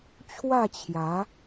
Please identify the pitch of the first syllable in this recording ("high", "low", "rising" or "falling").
falling